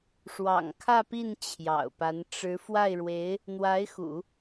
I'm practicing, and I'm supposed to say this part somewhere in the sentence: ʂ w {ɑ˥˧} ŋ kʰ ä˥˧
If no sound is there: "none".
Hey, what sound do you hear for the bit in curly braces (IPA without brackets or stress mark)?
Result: ɑ̰˨˩